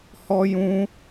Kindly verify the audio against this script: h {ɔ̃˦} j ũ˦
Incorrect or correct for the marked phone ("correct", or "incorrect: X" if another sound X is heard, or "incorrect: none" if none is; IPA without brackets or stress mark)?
incorrect: ɔ˦